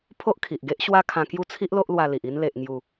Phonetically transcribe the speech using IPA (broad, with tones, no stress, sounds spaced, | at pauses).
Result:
pʰ o˦ ʔ kʰ i˨ ʔ ɡ e˦ ʔ ɕ w a˦ kʰ ã˧ k j u˦ t͡sʰ i˦ ʔ l o˦ ʔ l w a˧ l i˨ ʔ i˧ n l e˨ ʔ ŋ j u˨˩